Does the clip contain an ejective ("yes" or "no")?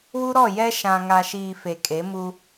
yes